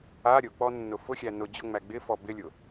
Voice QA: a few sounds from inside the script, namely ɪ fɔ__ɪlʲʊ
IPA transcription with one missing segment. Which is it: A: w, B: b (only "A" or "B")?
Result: B